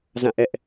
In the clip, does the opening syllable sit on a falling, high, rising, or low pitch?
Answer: falling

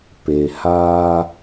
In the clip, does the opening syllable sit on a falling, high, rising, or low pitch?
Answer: low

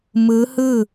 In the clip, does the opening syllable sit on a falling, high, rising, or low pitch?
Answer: rising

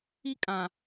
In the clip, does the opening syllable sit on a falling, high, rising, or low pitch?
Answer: high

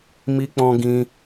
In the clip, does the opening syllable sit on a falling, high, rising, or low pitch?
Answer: high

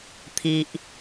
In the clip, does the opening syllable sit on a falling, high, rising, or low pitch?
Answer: low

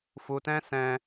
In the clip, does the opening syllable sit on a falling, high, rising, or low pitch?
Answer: low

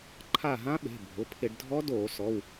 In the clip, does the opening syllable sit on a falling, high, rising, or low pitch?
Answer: falling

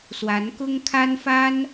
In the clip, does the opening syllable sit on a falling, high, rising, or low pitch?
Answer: rising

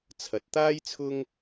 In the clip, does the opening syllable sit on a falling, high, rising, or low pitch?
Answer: rising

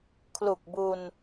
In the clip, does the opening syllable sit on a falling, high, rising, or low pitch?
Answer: low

